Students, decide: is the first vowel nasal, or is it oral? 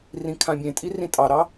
nasal